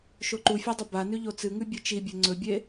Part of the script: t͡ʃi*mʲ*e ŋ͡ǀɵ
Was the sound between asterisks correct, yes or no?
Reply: no